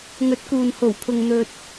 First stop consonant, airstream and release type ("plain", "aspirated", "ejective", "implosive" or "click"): plain